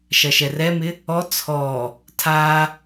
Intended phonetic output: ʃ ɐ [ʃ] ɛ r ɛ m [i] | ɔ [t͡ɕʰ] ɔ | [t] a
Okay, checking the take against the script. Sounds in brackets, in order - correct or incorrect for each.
correct, incorrect: ɪ, incorrect: t͡sʰ, incorrect: tʰ

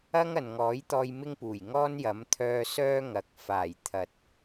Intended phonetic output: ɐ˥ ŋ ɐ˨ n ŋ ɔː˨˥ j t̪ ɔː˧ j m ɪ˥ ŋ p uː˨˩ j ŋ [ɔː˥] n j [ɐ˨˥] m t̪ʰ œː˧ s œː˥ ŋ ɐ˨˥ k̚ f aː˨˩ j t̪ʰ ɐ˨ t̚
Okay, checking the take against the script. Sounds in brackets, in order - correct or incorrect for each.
correct, correct

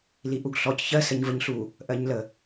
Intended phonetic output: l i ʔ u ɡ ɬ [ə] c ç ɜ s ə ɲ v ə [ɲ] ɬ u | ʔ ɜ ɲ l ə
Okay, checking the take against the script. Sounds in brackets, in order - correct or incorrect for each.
incorrect: ɔ, correct

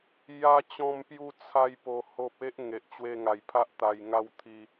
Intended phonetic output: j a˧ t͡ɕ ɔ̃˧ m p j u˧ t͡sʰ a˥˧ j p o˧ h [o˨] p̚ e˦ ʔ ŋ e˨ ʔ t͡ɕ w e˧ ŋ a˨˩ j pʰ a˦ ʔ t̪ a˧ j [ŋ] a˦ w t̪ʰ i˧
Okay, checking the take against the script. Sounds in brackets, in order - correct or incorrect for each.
incorrect: o˦, correct

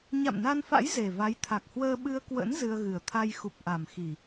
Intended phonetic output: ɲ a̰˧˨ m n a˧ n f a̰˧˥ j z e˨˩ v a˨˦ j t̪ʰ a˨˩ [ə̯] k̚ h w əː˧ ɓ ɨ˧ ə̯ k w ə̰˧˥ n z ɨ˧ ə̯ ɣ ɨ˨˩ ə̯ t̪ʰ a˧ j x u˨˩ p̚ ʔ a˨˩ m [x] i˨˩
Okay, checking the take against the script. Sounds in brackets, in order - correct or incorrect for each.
incorrect: none, correct

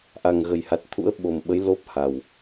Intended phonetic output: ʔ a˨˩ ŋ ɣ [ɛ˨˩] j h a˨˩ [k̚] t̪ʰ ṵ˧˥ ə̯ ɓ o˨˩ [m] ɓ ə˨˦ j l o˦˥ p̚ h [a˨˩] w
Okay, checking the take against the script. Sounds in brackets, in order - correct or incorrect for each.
incorrect: ə˨˩, incorrect: t̚, correct, correct

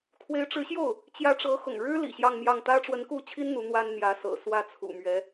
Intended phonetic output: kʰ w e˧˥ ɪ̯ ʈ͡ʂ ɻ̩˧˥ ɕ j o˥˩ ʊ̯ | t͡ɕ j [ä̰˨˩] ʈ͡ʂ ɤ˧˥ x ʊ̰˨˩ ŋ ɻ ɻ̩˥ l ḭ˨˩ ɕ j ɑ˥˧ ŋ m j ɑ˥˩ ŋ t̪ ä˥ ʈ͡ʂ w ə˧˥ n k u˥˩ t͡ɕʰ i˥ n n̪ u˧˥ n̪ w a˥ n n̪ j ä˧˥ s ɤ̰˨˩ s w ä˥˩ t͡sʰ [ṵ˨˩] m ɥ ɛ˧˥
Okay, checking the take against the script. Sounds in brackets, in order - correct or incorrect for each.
incorrect: ä˧˥, correct

